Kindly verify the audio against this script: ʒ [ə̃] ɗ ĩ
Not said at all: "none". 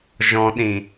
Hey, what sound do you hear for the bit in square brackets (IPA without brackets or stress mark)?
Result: ɔ̃